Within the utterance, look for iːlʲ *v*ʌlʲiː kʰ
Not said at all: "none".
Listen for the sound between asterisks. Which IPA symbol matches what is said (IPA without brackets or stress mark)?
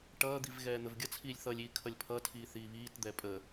θ